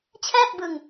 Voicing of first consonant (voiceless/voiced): voiceless